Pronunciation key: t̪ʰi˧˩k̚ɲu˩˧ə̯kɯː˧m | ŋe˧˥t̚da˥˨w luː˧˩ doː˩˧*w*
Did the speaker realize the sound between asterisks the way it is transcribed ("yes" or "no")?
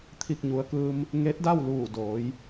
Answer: no